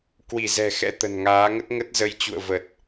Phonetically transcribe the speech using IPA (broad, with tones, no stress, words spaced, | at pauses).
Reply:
kwi˧˩zɛ̤˨˩xɛ̰˧˥ t̪ə̤˨˩nŋaː˨˦ ŋə˦˥t̚ŋə˦˥t̚ zə˧jt͡ɕṵ˧˨ə̯və˨˩t̚